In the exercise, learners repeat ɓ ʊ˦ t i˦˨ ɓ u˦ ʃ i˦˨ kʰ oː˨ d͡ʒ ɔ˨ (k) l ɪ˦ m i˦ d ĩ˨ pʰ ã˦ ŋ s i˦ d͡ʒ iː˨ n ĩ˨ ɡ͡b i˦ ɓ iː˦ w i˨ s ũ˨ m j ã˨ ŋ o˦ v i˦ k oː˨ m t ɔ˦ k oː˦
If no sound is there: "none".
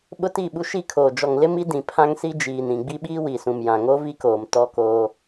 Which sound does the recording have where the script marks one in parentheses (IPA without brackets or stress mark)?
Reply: ŋ